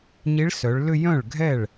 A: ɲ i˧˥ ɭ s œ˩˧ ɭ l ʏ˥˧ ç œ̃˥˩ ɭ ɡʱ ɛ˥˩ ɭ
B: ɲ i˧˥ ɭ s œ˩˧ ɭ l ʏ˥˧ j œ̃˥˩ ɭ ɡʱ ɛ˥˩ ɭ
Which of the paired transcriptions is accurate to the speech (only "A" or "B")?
B